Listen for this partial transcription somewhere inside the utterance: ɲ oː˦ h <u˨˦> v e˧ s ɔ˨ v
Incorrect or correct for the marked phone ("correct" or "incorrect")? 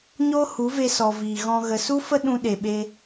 correct